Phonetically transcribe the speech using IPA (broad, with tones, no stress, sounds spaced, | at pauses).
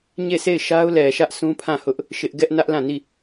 ɲ e˦˨ s e˦˨ ɪ̯ ʃ a˦ ʊ̯ l ɛ˨ ʃ ä˦ ʔ sʰ ũ˦ pʰ ã˦˨ h ʊ˦ ʔ | ʃ ɪ˦ ʔ ɡ ɛ˦ ʔ n ä˦ ʔ l ã˦˨ n i˦˨